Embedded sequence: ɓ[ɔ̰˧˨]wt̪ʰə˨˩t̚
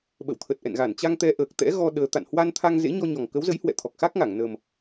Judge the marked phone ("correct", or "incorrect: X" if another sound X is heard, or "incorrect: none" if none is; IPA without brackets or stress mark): incorrect: ə̰˧˨